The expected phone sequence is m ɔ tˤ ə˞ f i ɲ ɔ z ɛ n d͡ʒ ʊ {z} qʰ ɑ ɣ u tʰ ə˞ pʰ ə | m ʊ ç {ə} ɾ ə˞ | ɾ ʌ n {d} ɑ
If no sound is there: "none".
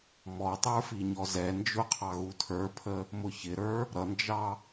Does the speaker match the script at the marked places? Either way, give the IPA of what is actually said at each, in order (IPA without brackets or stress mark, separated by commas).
none, ɪ, d͡ʒ